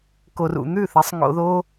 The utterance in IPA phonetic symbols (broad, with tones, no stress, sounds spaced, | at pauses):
k o˨ r ṵ˨ n̪ ʉ˦˨ θ ɐ˨˦ sˤ ŋ o̰˧ ð o˦